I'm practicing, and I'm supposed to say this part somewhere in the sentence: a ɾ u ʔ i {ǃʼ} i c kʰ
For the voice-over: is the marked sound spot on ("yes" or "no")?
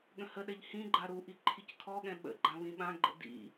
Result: no